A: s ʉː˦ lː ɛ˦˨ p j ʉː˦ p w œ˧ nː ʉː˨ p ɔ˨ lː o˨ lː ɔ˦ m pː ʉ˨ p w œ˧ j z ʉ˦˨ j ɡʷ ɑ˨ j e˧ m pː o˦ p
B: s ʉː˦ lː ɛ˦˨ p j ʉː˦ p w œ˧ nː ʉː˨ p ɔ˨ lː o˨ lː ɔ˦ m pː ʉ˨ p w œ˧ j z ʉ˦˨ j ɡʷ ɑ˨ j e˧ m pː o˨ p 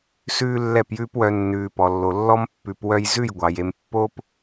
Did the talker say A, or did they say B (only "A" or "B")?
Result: A